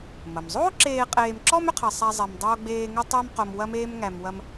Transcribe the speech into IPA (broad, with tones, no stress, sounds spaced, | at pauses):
m ɐ˩ m zˤ oː˥ ǁ eː˧ qʼ eː˧ m ǁ ɔ˥ m ʏ˥ qʰ ɐ˧ sˤ æ˥ zˤ ɛ˧ m dˤ oː˥ ɡ͡b eː˥ ŋ ʏ˥ tˤ æ˥ m q o˧ m w ɐ˥ m eː˥ m ŋ æ˧ m w ɐ˥ m